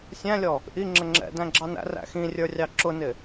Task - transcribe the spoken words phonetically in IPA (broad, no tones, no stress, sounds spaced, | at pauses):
sʲ æ̃ lʲ ɔ | ʔ i ŋ͡ǁ ə ŋ͡ǁ ɛ̰ d æ̃ ɡ͡ǁ ɑ n æ̰ r æ̰ x ĩ rʲ ə˞ rʲ ɑ ǁ ʊ n ɪ